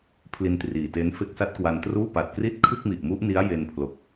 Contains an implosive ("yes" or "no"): no